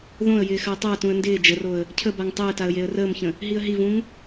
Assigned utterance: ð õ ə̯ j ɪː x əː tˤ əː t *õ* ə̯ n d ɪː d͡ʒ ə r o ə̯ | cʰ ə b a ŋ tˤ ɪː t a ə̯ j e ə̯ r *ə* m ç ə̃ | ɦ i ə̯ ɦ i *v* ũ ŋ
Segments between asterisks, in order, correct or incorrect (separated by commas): incorrect, incorrect, correct